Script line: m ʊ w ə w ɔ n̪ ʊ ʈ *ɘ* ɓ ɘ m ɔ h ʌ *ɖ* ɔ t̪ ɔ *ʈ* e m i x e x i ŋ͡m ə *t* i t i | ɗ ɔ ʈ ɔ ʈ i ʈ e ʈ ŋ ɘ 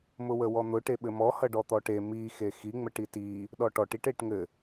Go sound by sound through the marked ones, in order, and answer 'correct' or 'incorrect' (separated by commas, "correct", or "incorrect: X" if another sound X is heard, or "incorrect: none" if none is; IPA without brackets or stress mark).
incorrect: e, correct, correct, incorrect: ʈ